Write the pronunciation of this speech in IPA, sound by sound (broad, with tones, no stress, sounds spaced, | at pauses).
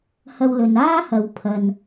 h ɐ˧ w l ɵ˨ n aː˥ h ɐ˨˧ w pʰ ɐ˨ n